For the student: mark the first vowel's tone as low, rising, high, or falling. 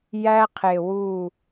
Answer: high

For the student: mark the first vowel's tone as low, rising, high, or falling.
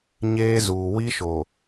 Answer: high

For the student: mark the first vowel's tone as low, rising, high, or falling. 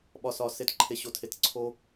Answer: low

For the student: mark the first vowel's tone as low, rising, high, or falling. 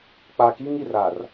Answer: low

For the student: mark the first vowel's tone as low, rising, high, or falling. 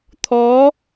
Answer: rising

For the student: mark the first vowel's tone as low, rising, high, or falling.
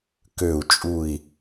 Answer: low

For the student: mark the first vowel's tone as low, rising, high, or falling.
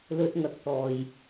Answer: high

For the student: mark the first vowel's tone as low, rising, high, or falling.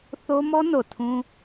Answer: high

